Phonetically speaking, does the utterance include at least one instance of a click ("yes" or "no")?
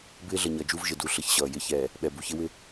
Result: no